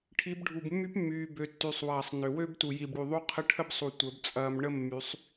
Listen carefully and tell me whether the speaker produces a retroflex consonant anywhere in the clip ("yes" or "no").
yes